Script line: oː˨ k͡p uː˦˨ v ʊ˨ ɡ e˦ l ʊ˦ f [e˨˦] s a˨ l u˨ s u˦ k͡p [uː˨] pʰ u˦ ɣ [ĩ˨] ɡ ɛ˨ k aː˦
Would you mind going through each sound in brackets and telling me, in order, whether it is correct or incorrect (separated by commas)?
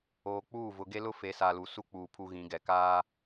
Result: correct, correct, incorrect